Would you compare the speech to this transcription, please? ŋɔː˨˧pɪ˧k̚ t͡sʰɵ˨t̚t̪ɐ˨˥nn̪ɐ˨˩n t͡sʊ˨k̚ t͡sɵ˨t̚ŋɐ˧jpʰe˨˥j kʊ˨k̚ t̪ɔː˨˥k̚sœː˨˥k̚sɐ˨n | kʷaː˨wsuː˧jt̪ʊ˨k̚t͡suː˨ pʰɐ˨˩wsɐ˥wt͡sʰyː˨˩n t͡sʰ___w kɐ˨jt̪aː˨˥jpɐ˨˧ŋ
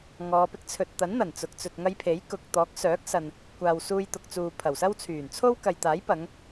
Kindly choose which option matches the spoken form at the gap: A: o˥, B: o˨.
A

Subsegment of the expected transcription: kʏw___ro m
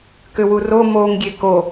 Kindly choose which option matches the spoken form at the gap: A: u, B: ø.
A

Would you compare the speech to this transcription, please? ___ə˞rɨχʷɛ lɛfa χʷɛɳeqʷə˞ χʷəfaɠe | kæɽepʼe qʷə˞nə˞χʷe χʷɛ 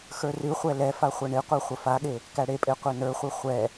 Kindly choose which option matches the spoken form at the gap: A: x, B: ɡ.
A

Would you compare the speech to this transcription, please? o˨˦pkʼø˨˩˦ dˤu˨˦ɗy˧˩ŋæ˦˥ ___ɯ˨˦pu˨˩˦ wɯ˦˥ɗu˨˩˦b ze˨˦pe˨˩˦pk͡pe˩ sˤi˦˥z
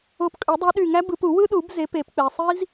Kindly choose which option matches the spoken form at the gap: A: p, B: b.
B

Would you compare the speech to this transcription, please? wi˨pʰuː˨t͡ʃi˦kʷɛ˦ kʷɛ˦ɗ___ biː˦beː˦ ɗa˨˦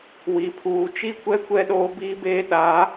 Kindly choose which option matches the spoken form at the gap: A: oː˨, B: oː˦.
B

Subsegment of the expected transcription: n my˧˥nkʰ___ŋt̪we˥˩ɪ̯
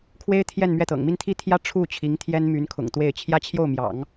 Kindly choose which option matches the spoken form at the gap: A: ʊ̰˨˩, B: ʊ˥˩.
A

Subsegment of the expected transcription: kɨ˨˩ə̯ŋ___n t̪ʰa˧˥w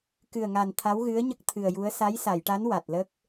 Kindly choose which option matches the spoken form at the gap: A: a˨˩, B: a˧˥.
A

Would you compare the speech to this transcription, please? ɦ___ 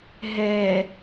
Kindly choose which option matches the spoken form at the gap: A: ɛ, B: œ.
A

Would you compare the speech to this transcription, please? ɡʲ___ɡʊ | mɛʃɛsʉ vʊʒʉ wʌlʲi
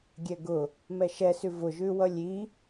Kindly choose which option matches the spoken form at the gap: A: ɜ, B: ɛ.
B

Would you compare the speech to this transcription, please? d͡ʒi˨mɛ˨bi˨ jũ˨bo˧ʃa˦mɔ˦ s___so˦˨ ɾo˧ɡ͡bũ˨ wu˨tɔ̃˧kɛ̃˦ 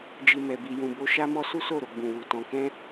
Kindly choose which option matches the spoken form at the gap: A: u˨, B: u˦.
B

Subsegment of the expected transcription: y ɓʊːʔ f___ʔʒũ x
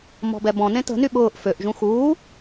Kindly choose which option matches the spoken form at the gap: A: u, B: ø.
B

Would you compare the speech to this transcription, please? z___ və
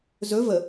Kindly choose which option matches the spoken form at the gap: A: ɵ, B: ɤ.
A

